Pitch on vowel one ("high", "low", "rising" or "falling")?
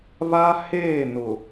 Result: high